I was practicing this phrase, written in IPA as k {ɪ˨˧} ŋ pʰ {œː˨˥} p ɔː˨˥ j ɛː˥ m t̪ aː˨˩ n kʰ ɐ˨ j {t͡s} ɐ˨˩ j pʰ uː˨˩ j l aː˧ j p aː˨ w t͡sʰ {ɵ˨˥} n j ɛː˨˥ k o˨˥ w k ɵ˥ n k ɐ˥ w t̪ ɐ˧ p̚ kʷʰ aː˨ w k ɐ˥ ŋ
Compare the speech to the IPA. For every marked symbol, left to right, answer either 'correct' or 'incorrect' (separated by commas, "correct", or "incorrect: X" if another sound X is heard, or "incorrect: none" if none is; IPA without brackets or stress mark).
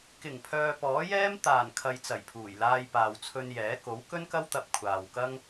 incorrect: ɪ˨˩, incorrect: œː˨, correct, incorrect: ɵ˧